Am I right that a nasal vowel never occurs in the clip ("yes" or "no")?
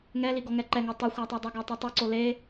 yes